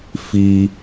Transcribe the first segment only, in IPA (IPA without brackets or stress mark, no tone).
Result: f